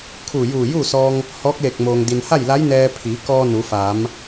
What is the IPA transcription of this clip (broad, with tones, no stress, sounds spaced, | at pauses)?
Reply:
kʰ uː˧˩ j uː˧˩ j uː˥˨ s ɔː˧ ŋ | h ɔː˧˥ k̚ l e˧˩ k̚ m oː˩ ŋ d i˩ n h a˥˨ j l a˧˥ j n ɛː˧ pʰ i˩˧ k ɔː˧ n u˩˧ f aː˩˧ m